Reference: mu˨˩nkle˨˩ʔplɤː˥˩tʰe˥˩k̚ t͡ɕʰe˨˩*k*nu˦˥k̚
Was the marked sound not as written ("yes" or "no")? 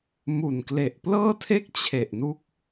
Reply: yes